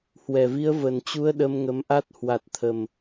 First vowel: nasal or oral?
oral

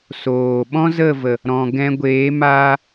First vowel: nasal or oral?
oral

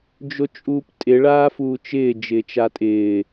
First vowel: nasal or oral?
oral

